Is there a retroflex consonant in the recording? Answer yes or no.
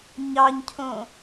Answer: no